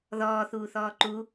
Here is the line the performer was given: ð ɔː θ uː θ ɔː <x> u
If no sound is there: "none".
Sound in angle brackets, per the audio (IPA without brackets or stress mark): ǃ